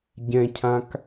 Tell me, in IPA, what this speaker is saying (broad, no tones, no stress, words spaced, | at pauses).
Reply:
ɟɛ̃cʰãk